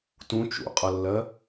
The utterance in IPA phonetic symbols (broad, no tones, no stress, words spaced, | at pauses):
tũ t͡ʃṵqʼʌlːɜ